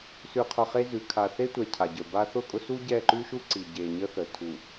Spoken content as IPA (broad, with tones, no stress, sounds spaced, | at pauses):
s ʉ˨ qʰ ʊ˨ χ e˦ z ʉ˨ kʰ a˨ θ e˦ tʷ ɛ˨ cʰ a˨ ɟ ə˞˨ b a˦ θ ʊ˦˨ kʼ ʊ˦ s u˦ ɟ ɛ˦˨ ǃ ʉ˦ ʃ u˦ ǀ i˨ ɟ e˨ ɲ ə˦ θ ə˨ tʰ u˨